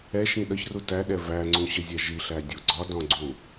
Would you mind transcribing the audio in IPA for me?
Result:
ɛ ʃ ĩ ɗ ʌ ç r u t æ ɗ ɛ v æ ŋ͡ǀ ũ ɕ ə zʲ ɛ ʒ i ɬ æ dʲ u ɡ͡ǀ ɒ d ɔ̃ ɡ͡ǀ ũ

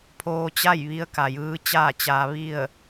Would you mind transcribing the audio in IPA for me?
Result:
pʰ oː˧ t͡ɕ a˥˨ j ʋ i˧˥ ə̯ k a˩ j ɯː˧˥ t͡ɕ aː˥˨ t͡ɕ aː˧ ʋ i˥˨ ə̯

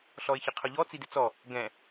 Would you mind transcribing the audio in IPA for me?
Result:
ɬ ɔ ɪ̯ ç ə qʰ ʊ ʎ ɔ t͡s i d ɪ t͡s ɔ | ɡ ɛ̃

